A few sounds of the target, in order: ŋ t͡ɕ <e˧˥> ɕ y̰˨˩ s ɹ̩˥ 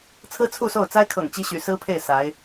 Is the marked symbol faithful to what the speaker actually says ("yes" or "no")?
no